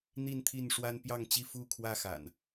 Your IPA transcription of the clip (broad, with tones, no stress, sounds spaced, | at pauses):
n̪ i˥˨ n t̪ʰ i˥˨ n ʂ w a˦ n p j ɑ˥˨ ŋ t͡ɕ i˥˨ f u˥˨ kʰ w ä˦ x a̰˨˩ n